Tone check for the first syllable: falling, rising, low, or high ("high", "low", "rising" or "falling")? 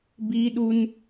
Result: high